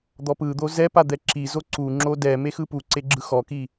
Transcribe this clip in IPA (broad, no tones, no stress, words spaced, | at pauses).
d̪ɔpɯd̪o zɛ pad̪ɛǁizo ǀuŋ͡ǁo dɛme xɯpuǀe ɡ͡ǁɯxɔki